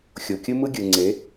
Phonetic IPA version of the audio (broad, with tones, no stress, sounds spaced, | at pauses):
xʲ o˨ kʲ ɯ˦ m ɯ˦ ɡʲ ɯ˨ ŋ͡ǀ e˨˦